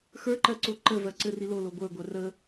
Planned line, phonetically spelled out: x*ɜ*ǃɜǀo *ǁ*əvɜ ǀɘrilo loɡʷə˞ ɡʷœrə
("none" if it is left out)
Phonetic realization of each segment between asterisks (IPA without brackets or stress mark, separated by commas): ə˞, ǃ